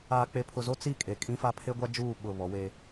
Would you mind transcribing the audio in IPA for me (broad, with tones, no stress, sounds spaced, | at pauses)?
aː˨ k͡p e˨ pʰ ʊ˨ z o˦ t͡s i˦˨ kʼ e˨ kʼ ĩ˦ f a˦ pʰ e˦ ɡʷ a˦ d͡ʒ uː˦˨ ɓ ʊ˦˨ β ɔ˨˦ w eː˦